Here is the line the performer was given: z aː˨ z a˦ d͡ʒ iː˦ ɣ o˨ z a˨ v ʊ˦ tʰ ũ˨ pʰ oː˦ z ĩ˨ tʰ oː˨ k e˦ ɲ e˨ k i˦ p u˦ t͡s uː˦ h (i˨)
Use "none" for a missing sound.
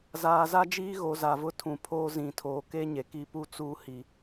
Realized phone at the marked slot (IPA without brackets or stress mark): i˨